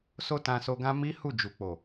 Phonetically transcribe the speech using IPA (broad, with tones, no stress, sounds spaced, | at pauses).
s o˦ t ã˧ s o˧ ɡ ã˦ m i˦ h u˦˨ d͡ʒ u˨ k͡p o˨